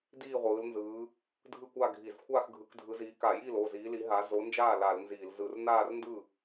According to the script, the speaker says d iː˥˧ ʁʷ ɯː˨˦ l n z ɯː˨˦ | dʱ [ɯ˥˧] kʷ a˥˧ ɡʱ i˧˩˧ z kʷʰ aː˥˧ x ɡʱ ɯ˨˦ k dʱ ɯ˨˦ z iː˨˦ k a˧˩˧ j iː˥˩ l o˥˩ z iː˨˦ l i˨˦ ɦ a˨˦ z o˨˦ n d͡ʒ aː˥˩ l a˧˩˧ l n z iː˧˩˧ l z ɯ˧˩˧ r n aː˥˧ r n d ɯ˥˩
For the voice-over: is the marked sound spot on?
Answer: yes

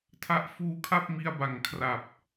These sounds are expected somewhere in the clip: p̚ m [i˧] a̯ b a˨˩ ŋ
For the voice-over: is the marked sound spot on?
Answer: yes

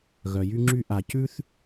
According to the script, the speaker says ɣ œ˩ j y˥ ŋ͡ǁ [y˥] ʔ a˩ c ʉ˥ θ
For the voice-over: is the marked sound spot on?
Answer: yes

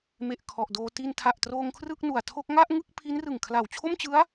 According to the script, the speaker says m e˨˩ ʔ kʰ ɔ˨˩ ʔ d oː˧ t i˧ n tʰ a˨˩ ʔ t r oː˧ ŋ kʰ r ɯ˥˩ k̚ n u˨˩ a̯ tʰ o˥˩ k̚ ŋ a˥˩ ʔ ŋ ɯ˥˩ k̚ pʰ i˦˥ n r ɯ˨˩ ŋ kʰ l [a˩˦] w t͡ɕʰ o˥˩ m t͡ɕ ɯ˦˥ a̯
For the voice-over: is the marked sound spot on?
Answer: no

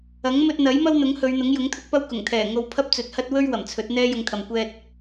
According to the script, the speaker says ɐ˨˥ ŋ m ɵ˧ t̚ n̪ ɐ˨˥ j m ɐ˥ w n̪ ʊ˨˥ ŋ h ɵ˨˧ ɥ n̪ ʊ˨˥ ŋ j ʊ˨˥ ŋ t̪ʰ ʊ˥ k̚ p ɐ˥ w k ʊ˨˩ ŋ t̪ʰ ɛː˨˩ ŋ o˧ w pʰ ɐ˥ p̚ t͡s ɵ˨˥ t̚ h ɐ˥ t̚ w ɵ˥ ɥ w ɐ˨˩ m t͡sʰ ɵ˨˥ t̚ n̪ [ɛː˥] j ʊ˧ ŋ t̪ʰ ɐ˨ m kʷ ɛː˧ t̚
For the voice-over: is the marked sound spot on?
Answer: yes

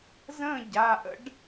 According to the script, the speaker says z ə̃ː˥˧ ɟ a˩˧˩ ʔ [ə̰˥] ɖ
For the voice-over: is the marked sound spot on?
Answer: yes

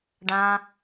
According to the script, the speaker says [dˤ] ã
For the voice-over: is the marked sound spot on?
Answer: no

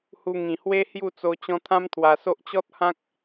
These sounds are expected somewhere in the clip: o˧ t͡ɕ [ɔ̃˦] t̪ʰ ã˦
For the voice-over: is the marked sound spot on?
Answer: yes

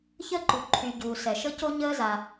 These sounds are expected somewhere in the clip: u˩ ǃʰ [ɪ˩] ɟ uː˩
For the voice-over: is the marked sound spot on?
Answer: no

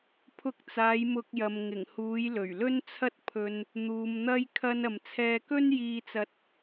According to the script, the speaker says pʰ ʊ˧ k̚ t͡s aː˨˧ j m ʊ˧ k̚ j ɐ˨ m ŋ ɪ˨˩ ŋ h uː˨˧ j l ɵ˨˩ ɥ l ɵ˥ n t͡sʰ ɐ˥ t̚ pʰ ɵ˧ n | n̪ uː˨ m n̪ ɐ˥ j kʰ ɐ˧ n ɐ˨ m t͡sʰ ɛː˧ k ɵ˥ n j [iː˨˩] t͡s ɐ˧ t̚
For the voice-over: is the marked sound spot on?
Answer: no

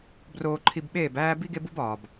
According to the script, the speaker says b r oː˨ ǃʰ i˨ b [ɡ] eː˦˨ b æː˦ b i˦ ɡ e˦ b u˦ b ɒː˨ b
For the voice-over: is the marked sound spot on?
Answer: no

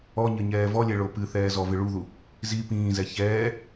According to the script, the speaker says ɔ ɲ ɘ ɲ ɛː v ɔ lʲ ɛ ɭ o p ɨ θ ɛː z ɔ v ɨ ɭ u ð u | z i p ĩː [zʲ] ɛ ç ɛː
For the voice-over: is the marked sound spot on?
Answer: no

